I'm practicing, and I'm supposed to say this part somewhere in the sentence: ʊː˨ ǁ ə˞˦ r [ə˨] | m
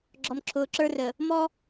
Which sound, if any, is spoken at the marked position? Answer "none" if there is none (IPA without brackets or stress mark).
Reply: ə˨